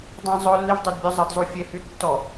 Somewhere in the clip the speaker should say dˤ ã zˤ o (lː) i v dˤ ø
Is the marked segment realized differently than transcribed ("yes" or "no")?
no